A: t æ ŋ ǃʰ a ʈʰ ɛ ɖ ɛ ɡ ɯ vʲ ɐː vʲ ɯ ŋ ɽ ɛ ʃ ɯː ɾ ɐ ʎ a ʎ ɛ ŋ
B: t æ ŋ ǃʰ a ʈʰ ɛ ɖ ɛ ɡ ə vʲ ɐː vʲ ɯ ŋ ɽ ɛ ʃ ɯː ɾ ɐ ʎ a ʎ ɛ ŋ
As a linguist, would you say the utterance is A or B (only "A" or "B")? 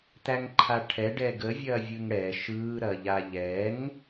B